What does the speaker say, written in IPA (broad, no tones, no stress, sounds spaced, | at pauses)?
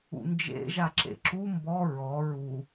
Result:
ṵ n d͡ʒ ḛ ʒ a ǁ ḛ ǁ u m b ɔ ɹ ɔ ɹ u